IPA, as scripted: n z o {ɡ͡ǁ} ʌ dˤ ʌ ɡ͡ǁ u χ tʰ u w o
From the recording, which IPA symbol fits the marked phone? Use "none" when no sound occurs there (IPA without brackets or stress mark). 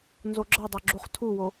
ɡ͡ǁ